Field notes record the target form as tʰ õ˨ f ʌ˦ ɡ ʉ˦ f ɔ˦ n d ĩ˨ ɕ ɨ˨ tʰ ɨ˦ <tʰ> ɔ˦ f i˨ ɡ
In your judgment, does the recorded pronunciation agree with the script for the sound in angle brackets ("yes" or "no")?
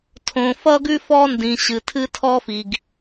yes